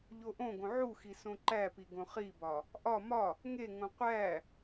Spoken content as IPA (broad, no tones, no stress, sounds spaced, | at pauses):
ʎ o ʔ õ ɡ õ ʕ u x i s õ ǃ æ p i ɡ õ χ i b ɒ | ʔ ɒ m ɒ | ŋ e ŋ õ qʷ æ